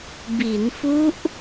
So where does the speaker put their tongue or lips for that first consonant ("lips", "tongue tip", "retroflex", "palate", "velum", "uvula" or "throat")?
lips